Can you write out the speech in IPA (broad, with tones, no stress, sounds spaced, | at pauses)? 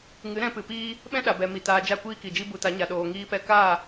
ŋ ɨ˨˦ ɾ ɛ̃˧ p ɨ˨ p iː˦ | ɓ ɛ̃˦ ɗ a˨ b ɛ˨ m i˨ t aː˧ d͡ʒ a˦˨ kʷ iː˦ k i˨ d͡ʒ i˦ b u˧ t a˨˦ ɲ a˨ ɗ oː˨ ŋ iː˧ p ɛ˧ k aː˦˨